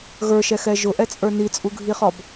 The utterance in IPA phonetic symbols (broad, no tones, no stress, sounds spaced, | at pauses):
ɣ ə˞ ʃ ɛ x ɛ ʒ ʊ ʔ ɛ t͡sʼ ə˞ n i t͡sʼ u ɡʱ i χ ɔ b